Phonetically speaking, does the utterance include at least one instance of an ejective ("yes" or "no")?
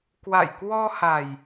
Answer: no